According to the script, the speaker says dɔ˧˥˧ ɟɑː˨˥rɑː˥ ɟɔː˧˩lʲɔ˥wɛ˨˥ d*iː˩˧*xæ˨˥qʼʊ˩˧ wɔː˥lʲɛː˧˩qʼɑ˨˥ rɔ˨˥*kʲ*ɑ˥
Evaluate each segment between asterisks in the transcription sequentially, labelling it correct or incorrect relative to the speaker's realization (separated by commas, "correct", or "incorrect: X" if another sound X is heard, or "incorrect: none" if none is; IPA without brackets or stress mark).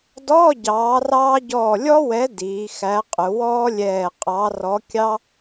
correct, correct